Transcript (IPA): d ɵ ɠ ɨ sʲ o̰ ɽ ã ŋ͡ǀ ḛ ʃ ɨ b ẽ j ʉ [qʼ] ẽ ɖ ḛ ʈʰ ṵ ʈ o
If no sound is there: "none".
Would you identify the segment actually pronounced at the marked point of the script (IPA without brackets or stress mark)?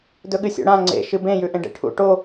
ʔ